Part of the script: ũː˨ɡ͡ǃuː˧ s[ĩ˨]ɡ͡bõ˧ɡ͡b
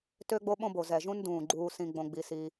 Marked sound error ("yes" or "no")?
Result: yes